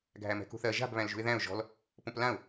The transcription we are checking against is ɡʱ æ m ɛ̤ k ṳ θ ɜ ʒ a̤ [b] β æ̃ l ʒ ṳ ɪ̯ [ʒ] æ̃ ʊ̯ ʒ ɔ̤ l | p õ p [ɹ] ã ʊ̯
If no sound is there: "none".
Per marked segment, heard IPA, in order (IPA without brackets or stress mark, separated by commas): b, ð, l